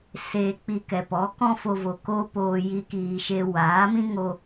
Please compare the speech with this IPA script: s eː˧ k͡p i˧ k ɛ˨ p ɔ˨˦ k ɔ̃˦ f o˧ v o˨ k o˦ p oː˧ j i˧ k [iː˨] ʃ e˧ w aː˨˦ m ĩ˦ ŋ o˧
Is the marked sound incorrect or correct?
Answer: correct